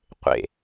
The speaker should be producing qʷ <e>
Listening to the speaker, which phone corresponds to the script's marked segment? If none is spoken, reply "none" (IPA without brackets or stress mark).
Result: ḛ